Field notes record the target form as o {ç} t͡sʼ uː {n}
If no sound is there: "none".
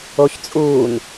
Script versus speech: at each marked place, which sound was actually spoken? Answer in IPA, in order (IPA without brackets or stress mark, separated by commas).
ç, n